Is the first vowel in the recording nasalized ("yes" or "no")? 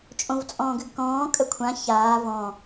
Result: yes